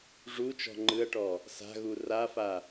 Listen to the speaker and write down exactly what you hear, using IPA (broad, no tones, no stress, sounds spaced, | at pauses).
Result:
ʐ u t͡ʃ ɔ̤ ŋ͡ǃ ɯ ɐ̯ ʈ ɔ | s a̤ ɣ u r a f a